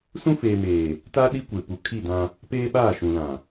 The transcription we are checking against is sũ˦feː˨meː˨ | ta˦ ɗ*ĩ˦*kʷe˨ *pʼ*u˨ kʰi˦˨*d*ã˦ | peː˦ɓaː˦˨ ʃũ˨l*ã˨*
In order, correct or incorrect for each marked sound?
incorrect: i˦, incorrect: p, correct, correct

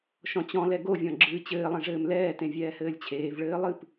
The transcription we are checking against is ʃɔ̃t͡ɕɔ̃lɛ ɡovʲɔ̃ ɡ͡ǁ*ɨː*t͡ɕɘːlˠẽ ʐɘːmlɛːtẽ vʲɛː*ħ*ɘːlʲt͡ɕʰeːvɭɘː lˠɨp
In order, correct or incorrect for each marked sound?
correct, incorrect: h

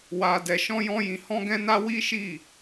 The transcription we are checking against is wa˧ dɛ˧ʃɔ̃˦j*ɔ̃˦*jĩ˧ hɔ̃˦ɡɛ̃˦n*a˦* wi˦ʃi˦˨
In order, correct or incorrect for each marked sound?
correct, correct

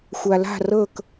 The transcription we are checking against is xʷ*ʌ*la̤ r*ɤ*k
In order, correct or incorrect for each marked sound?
incorrect: a, correct

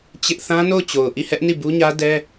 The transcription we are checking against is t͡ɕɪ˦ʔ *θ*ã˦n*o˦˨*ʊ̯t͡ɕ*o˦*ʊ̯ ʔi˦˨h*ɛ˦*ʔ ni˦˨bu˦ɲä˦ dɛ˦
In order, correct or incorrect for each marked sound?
correct, correct, incorrect: o˨, correct

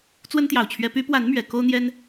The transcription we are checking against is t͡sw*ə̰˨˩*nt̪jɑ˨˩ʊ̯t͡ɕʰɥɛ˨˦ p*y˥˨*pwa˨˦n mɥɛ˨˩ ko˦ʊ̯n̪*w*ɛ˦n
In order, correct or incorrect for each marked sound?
incorrect: ə˦, incorrect: y˨˦, incorrect: j

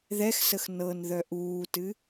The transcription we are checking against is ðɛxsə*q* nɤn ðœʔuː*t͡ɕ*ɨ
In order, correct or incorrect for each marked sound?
incorrect: x, incorrect: t

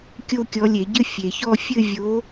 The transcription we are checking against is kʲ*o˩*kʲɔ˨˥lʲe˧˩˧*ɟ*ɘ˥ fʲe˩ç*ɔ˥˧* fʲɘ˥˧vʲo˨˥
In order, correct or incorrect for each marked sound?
incorrect: o˥˧, correct, correct

